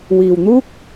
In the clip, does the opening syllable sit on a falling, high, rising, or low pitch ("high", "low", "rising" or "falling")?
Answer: low